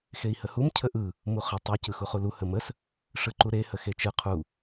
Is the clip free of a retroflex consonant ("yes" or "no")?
no